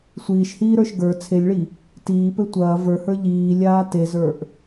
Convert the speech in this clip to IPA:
sʷiːʃhiːɾə˞ʃ ɡə˞ t͡sʰelʲɭi | tiːpɘ tʷɐː və˞hə˞ ʎiːlʲaː tezə˞ʔ

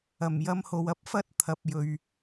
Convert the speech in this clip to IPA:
ɐ˨˩mjɐ˧mho˨w ɐ˨p̚fɐ˥t̚ t̪ʰɐ˨p̚ jɵ˨ɥ

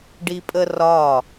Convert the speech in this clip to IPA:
ɖipʼərɒ

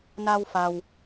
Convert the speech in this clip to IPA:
na˧wfa˩w

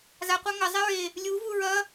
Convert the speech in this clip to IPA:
zaqʷa ŋɐzˤɛ ɹe | lʲuvu ɹɐ

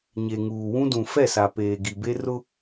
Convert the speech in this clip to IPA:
ɲe˨ŋuː˨ wũ˦dũ˨ fɛ˦˨sa˨ peː˨ɡi˨be˦ rʊ˦

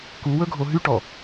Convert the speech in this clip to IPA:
kuwɵɡʱo ɦyʈɔ

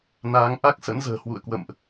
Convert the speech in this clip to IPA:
naː˨˦ŋ ʔa˦˥k̚sə̰˧˥nzə̤ː˨˩ hwṵ˧˨ə̯kwə̰˧˨mʔ

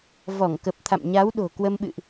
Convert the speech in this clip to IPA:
vɔ˧˩ŋkə˨˩p̚ t̪ʰa̰˧˨mɲa˨˦wɗo̤˨˩ kwə˧mɓɨ̰˧˨ʔ

